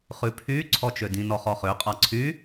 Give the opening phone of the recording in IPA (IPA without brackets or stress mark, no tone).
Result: χ